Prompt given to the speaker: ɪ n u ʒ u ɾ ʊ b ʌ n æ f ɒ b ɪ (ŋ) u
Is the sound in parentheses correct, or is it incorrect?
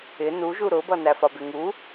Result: correct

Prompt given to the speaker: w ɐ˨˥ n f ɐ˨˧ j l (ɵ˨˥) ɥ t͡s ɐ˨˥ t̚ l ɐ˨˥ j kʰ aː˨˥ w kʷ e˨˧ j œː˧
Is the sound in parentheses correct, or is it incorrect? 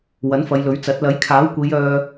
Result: correct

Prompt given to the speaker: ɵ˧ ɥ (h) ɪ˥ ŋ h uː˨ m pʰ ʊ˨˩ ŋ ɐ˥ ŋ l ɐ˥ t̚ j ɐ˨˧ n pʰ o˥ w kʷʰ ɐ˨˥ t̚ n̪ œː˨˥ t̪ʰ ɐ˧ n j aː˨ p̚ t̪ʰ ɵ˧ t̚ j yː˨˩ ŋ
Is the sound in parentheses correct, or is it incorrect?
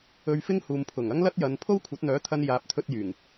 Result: incorrect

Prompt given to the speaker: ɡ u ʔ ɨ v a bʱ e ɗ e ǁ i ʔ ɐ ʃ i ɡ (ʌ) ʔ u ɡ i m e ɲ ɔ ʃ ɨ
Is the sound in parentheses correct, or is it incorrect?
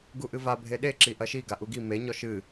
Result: incorrect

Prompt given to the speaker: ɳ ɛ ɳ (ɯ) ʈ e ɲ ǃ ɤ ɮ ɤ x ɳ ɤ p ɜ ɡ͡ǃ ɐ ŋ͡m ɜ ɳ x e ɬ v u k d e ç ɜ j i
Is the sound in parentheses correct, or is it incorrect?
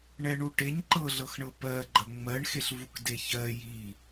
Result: incorrect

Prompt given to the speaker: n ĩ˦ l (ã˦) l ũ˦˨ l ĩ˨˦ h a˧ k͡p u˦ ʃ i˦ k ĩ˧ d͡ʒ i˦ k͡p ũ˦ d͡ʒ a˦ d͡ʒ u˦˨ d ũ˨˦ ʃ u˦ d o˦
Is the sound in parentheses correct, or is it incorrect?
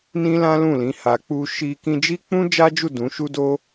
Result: correct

